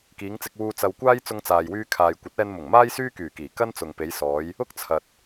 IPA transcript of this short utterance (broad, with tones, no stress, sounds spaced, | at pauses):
k iː˨˧ ŋ t͡s ɪ˧ k̚ w uː˧ t͡s ɐ˧ w kʷ aː˥ j t͡s ʊ˧ ŋ t͡s aː˨ j w yː˧ kʰ aː˨ j kʷ ɐ˨˥ t̚ ɛː˧ n m ʊ˨˩ ŋ m aː˥ j s yː˥ k yː˨˩ k iː˨˩ k ɐ˥ n t͡s ʊ˨ ŋ p e˨˧ j s ɔː˨˧ j | ʊ˥ k̚ t͡sʰ ɐ˨ t̚